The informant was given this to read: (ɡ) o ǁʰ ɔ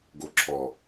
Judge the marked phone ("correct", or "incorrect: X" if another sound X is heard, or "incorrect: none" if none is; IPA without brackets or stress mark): correct